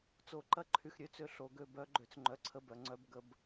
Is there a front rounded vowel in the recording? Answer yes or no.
yes